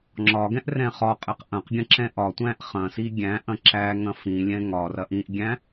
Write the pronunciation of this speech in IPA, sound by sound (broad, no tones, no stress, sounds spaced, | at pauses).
ŋ͡ǁ ɒ ɡ ɛ̃ ʔ r ɛ̃ χ ɒ qʼ ɛ q ʔ ɐ̃ q ɡʲ ɐ̃ ǁ ɛ̃ ʔ ɒ tʷ æ̃ ʔ χ ɐ̃ s i ɡʲ æ̃ ʔ ɐ̃ ǁ æ ŋ ɐ̃ f ĩ lʲ ɛ̃ ŋ ɒ r ɐ ʔ ĩ ʔ ɡʲ æ̃